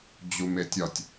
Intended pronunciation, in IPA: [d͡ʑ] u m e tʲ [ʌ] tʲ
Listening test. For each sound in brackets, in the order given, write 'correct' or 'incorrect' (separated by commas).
correct, incorrect